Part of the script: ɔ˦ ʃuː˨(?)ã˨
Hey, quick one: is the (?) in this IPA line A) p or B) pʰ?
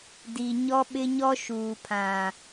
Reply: B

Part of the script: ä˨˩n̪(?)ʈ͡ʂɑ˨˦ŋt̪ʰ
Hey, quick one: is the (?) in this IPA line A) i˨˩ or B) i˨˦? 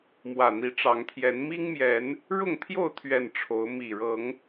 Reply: B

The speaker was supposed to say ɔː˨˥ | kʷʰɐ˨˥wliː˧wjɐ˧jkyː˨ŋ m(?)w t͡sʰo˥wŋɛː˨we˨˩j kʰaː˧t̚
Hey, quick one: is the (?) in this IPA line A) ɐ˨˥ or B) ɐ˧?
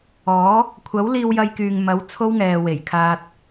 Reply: A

